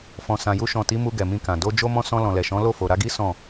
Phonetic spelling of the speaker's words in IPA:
f ɔ̃˨ s ã˨ j u˧ ʃ ɔ̃˨ t i˨˦ m u˧ ɡ ɛ˨ m ĩ˧ k ã˨ d o˧ d͡ʒ o˧ m ɔ̃˧ s ɔ̃˧ l ɔ̃˨ l ɛ˨ ʃ ɔ̃˨˦ l o˦˨ f o˨ ɾ a˧ ɡ i˦ s ɔ̃˦˨

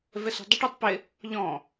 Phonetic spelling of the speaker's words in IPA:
v ɛ s ṳ dˤ ə ʈ ɛ tˤ p ɪ | ʎ ɔ̃

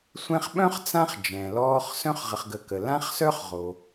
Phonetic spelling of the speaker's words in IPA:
sʷ ɛ̃˦ χ ɓ œ̃˥ χ t͡s ã˦ χ d͡ʒ ɛ̃˩ l ɔː˦ χ s œ̃˥ χ ʁ ə˨ χ ɡ ə˨ k ə˩ l ã˥ χ s œ˥ χ ʁ o˩

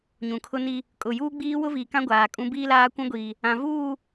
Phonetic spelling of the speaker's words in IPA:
ɲ ũ˨ kʰ ʊ˦ n i˦ | kʼ ʊ˨ j uː˦ ɡ͡b iː˦ w ʊ˦ v iː˨ k ã˦ ɡʷ aː˨ kʼ ũ˦ b iː˦ l aː˦ kʷ ũ˦ ɡʷ iː˨ | ã˨ v uː˦˨

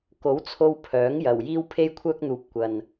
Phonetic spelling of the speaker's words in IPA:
k o˨˥ w t͡sʰ o˧ w pʰ œː˨˥ ŋ j ɐ˨˩ w j iː˥ w pʰ e˥ j kʷʰ œː˥ k̚ n̪ uː˨ p̚ kʷ ɐ˨ n

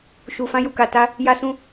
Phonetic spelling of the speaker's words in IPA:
ʃ u˨ f ã˧ j u˨ k a˨ t a˧ | j a˧ s ũ˧

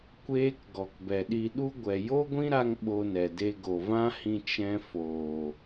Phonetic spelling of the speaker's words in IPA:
kʷ eː˦ k ɡ ɔ˨ k b ɛ˨ ɗ i˧ ɗ u˦ ɡʷ ɛ˨ j o˦ ɡʷ ĩ˦ ɾ a˧ ŋ ɓ o˧ n ɛ˨ d e˧ ɡ o˨ v ã˦ h ĩ˧ t͡ʃ ɛ̃˧ f oː˨

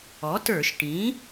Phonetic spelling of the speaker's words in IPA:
ɔ˩˥ t ə˞˧˩˧ ʃ ʈ ĩ˩˥

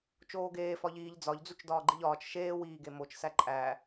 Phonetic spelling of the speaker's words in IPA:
t͡ʃ oː ɡ eː f ɒ ʎ iː ʎ d͡z ɒ ʎ d͡z u t͡ʃ d ɒː ɡ͡ǃ i ʎ ɒː t͡ʃ ʃ eː w iː ɡ e m o t͡ʃ s æ ǃʼ æ

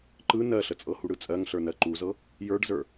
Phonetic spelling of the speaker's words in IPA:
ǃ ɯ n ɜ ɬ ə t͡sʼ ɤ h u ɽ ɯ t͡sʼ ɜ ŋ ɬ ə˞ n ɜ ǃ u z ɤ | j ə˞ ɖ z ə˞

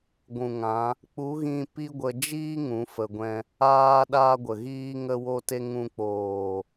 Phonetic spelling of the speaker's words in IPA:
ɡʷ ũ˨ ŋ ã˨˦ | k͡p u˨˦ ɣ ĩ˧ p i˦ ɡʷ ə˧ d͡ʒ iː˦ ŋ ũ˨˦ f ə˧ ɡʷ ɛ̃˦ | aː˦ ɗ aː˦ ɡʷ ə˨ ɣ iː˦ ŋ ə˦ w o˦ t e˦ ŋ ũ˧ k͡p oː˨

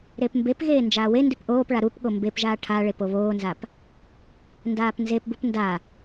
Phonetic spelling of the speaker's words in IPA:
ɾ e p m b e p ɣ eː n d͡ʒ aː w e n d ʉ p ʔ oː p ɭ a ɾ u p ɠ o m b e p ʒ aː ʈʰ a ɭ e p o β oː n z a p | n d aː p n z e p b u p n d a

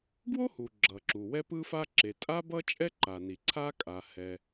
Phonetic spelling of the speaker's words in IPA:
ɡ w o˥ h u˩ ɡ͡ǁ ʌ˩ ǁ u˩ w ɛ˥ p ɯ˥ f a˥ ǁ e˩ tʼ a˥ b ʌ˥ t͡ʃʼ ɛ˥ ǃ a˩ n i˩ ǀʰ a˥ kʼ a˩ h ɛ˩

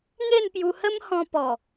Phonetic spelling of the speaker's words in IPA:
ŋ e˥˧ n p j u˧ h ə˦ m h ɔ̃˧ p ɔ˨˩

